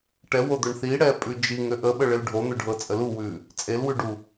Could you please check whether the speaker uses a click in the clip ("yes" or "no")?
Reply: no